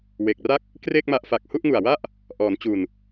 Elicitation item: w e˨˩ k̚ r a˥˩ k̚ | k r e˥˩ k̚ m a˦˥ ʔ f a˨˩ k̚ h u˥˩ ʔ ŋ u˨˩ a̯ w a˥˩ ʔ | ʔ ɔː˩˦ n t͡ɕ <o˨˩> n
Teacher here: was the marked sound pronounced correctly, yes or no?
no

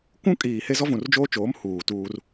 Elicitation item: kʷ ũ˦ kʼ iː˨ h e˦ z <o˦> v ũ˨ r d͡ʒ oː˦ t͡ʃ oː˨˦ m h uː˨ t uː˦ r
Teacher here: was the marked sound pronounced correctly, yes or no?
no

